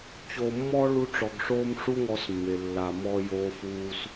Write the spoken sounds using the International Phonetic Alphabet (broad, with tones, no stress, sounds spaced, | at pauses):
t͡ɕ oː˧ mː ɔ˦ ɭ u˦ ʈ͡ʂ ɔ˧ ɡ ʂ oː˦ m ʂ u˦ ŋ ɔ˧ s mː e˨ lː a˨ m ɔː˧ j oː˧ f uː˧ s